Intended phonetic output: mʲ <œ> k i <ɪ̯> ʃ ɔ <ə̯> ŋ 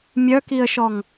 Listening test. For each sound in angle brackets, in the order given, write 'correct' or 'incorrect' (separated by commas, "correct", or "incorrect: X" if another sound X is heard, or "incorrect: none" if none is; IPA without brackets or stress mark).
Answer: correct, incorrect: ə̯, incorrect: none